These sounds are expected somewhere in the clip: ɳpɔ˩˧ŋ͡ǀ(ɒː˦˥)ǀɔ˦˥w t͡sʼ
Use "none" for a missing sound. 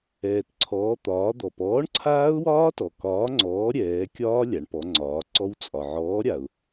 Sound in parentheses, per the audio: ɒː˩˧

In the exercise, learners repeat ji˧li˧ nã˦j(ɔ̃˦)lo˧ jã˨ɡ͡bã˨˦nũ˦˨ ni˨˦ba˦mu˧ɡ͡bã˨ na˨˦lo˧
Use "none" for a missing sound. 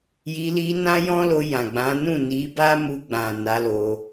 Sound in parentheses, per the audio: ɔ̃˦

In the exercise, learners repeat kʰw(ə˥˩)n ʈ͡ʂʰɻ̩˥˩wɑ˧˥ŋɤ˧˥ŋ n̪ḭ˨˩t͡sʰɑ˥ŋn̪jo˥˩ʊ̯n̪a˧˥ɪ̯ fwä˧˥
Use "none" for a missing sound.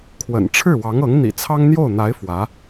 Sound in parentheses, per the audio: ə̰˨˩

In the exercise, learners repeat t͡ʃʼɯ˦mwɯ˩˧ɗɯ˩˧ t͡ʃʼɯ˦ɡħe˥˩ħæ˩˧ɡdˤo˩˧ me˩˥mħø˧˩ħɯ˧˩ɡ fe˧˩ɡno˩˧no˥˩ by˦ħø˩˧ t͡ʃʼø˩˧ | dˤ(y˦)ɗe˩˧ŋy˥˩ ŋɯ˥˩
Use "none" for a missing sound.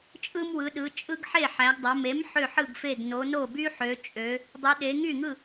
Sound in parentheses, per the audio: y˩˧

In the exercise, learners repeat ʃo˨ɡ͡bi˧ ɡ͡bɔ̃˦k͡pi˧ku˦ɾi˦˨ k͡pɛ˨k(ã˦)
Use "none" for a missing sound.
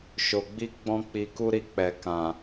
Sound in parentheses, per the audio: ã˨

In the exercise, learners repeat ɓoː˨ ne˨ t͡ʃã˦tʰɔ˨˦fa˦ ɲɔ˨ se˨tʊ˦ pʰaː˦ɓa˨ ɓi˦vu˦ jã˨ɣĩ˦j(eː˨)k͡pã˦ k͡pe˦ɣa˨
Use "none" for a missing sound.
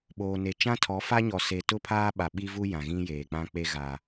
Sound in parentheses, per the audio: eː˨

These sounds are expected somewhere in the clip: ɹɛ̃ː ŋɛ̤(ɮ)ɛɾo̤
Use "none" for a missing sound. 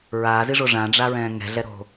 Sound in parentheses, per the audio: ɮ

